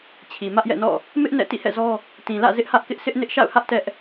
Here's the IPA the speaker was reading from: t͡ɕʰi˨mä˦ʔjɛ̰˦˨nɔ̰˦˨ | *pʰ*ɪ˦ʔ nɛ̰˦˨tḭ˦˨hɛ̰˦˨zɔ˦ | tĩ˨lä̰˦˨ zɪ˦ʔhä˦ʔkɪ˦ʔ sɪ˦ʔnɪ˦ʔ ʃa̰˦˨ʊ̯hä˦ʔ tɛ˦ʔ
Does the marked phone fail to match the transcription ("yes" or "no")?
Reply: yes